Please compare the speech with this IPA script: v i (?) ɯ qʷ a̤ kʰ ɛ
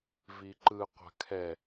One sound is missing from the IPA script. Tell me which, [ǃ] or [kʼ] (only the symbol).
ǃ